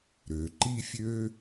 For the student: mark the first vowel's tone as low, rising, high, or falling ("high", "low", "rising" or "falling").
low